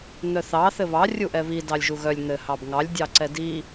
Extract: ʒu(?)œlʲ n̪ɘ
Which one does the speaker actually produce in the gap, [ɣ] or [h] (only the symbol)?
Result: ɣ